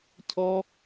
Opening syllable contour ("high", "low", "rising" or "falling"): high